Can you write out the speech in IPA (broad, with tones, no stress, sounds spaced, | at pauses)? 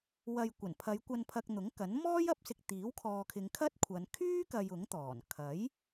w ɐ˧ j kʷ ɐ˨˩ n pʰ ɐ˨˧ j kʷ ɐ˨ n pʰ ɐ˨ k̚ n̪ ʊ˨˥ ŋ k ɐ˨˥ n m ɔː˥ j ɐ˧ p̚ s ɪ˧ k̚ t̪ iː˨˥ w kʰ ɔː˨ kʰ ɪ˨˧ ŋ kʰ ɐ˥ t̚ kʷʰ ɐ˨˧ n kʰ yː˥ k ɐ˨ j ʊ˨˥ ŋ t̪ ɔː˨˩ n kʰ ɐ˨˥ j